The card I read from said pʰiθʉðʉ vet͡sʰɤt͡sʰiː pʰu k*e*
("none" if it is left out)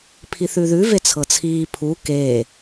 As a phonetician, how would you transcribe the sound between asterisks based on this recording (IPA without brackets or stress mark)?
eː